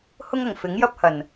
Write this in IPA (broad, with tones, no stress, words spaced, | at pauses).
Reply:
hʊ˥ŋɐ˨˩ŋfɪ˨˥ŋ jɐ˥p̚hɐ˨˩n